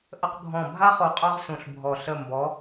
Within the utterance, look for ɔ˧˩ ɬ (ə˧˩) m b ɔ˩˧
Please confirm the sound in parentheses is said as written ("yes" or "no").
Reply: yes